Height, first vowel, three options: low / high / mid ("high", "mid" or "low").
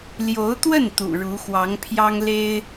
mid